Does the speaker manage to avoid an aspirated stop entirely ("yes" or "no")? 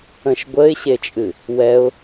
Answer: yes